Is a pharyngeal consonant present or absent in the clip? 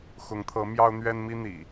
absent